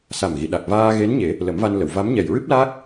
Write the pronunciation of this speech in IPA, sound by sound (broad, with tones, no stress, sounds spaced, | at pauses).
s a˨˩ m ɣ i˨˩˨ ɗ a˨˩ k̚ v aː˧ ɣ e˧˥ n ɲ e˨˩˦ | l ə˨˩˦ m v a˧ n l ə˨˩˨ w v a˧˥ m ɲ ɛ˨˩ j ɹ ɨ˦˥ p̚ l aː˦˥ k̚